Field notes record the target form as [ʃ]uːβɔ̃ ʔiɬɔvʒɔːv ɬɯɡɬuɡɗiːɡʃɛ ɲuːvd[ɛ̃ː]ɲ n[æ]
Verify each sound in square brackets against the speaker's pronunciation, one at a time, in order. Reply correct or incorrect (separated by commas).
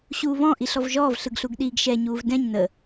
incorrect, incorrect, incorrect